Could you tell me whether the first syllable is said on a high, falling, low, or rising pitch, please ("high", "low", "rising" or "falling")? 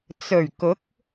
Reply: low